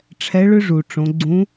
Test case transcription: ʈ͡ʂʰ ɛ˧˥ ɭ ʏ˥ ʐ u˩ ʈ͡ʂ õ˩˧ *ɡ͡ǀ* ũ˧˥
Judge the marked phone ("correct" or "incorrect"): correct